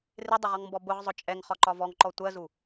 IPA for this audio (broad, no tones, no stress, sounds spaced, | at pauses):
r ɪ dˤ ɪ ʁ ɒ ŋ m b ɔ b ʊ ʁ zˤ ʊ t͡ʃʼ ɛ ŋ χ ɒ ǃ ɒ v ɔ ŋ ǃ ɔ tʷ ɜ z u